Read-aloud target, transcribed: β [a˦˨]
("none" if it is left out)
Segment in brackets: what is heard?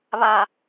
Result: a˨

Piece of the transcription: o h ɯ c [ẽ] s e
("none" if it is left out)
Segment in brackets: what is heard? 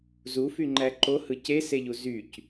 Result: e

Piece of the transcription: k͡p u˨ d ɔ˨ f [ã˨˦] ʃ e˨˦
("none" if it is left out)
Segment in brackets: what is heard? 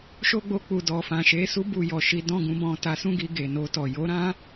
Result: ã˨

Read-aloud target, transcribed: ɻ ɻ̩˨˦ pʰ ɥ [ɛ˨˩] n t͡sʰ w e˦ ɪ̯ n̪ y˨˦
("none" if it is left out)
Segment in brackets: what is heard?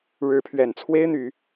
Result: ɛ˨˩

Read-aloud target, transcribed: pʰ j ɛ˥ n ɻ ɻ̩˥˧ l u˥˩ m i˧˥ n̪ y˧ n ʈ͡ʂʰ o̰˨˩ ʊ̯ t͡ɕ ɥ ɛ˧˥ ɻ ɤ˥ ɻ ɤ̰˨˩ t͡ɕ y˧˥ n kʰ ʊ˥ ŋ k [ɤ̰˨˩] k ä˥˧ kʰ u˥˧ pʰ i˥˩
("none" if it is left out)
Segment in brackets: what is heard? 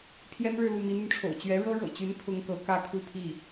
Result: ɤ˧˥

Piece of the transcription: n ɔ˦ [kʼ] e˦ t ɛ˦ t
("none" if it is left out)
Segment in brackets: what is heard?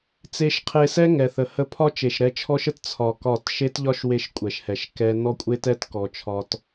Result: kʷʼ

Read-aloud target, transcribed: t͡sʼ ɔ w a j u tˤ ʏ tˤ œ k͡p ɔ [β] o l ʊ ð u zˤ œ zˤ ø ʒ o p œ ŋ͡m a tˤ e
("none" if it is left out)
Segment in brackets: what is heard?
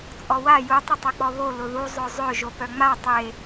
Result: β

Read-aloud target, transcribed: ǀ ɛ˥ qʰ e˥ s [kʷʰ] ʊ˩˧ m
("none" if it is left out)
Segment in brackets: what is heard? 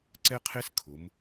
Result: kʰ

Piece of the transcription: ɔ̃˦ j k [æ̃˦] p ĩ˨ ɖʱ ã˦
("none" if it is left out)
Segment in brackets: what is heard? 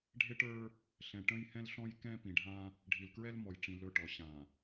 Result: ɛ̃˦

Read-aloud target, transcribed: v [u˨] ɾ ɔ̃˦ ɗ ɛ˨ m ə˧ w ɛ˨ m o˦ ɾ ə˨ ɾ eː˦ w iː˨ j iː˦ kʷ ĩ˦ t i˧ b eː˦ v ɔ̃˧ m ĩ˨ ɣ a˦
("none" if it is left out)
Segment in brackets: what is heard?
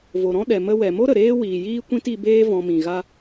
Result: o˨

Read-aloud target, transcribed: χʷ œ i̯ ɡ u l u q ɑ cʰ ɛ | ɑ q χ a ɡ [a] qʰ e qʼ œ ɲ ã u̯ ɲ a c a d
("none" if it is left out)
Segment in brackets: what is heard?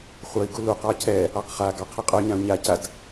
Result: ɑ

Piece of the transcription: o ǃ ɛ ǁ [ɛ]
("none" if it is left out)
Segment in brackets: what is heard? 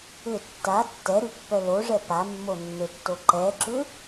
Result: ʏ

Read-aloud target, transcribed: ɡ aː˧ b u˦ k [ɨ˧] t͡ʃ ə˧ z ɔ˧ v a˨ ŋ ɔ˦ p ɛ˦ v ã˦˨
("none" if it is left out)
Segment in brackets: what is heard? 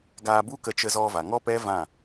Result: ə˧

